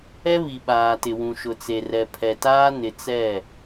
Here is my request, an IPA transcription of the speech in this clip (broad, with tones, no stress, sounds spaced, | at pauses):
ɛ˦ β i˨ ɓ aː˨ t ɪ˨ w ũ˨ ʃ ʊ˨ t͡s e˨ r ɛ˨ pʰ ɛ˨ t aː˦ n ɪ˨ t͡s ɛ˦˨